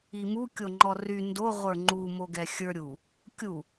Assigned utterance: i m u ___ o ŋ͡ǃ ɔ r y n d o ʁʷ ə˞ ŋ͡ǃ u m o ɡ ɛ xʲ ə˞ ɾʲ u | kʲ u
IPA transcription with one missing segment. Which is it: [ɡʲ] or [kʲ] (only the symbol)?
kʲ